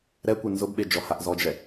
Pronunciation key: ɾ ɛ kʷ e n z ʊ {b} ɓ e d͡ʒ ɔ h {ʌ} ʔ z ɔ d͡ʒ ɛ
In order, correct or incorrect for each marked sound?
correct, incorrect

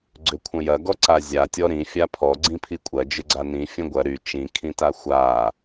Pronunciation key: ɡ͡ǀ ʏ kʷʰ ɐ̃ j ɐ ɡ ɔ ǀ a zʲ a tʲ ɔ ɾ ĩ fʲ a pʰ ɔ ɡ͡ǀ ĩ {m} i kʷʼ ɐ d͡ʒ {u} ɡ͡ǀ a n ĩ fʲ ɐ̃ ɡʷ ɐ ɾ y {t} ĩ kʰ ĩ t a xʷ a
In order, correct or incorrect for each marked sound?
incorrect, incorrect, incorrect

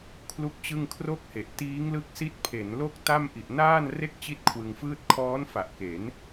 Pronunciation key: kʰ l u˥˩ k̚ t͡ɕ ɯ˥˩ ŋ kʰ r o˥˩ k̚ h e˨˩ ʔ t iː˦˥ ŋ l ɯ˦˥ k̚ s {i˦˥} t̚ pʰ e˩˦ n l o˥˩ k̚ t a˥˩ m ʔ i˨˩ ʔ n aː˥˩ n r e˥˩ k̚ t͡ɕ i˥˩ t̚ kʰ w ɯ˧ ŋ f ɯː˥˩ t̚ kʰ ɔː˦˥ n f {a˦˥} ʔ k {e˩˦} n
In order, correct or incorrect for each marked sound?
correct, incorrect, correct

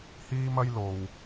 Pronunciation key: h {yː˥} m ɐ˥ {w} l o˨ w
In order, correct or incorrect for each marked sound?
incorrect, incorrect

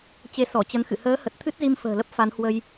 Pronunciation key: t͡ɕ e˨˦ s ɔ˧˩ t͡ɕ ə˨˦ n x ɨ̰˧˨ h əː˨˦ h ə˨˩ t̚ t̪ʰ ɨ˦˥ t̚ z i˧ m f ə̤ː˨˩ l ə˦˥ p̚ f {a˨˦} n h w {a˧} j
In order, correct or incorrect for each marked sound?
correct, incorrect

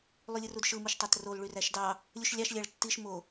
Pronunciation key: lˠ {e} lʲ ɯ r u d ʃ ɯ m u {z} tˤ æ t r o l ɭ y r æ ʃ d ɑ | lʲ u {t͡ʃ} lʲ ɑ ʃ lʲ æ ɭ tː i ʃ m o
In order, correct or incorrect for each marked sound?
incorrect, incorrect, incorrect

